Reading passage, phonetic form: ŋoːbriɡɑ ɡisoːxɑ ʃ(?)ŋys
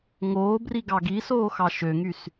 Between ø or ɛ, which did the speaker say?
ø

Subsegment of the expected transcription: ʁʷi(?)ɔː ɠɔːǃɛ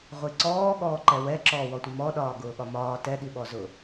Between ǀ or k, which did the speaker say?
ǀ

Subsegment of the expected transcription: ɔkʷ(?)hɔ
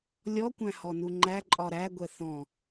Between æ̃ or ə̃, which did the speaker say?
æ̃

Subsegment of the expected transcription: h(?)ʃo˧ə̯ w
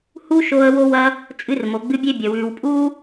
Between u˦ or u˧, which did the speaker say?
u˦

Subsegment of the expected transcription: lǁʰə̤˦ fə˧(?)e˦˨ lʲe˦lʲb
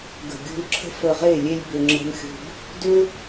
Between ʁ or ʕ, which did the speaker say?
ʁ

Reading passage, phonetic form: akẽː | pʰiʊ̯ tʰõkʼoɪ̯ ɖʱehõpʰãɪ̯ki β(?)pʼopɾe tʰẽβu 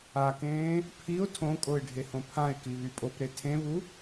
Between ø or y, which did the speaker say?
y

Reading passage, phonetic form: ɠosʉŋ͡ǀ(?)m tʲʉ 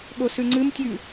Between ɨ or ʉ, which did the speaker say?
ɨ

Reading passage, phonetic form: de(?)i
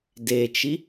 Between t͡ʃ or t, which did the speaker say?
t͡ʃ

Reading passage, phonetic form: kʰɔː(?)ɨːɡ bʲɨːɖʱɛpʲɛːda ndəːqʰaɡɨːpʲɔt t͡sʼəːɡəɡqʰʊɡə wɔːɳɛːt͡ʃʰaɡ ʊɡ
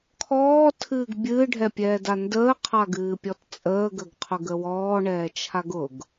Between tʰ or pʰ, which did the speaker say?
tʰ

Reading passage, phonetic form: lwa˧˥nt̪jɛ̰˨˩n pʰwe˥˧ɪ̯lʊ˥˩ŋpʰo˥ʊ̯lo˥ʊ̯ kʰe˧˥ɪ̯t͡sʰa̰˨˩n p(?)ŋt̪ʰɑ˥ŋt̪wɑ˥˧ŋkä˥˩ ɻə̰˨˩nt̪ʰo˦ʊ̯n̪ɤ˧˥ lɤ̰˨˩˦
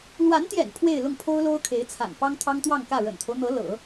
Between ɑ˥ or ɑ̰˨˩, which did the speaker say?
ɑ˥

